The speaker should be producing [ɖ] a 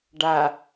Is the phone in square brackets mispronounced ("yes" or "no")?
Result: no